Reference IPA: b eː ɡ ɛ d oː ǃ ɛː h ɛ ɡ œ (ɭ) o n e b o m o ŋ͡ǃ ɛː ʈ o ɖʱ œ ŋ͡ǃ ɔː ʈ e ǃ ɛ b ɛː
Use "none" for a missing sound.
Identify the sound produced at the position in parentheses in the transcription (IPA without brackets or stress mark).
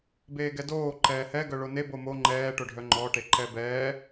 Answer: ɭ